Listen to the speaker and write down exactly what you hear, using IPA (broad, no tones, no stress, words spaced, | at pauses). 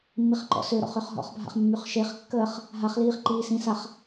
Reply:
mːiχǃɔ̰søɾɔ̰χ øχɦɔ̰χbʱa̰χ mːyχʃeχkːəːχ | ɦaχliːχ ǃiːsĩsaχ